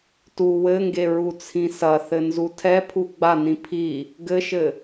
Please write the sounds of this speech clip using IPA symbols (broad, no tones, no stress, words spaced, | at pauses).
tu wɘŋɡe ɹut͡sʰĩsɐ θɘnzutʰɛ pʰuɡ͡banĩ pʰi | ɡɘʃɘ